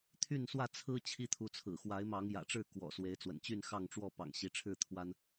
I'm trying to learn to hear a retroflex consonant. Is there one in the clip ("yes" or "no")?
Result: yes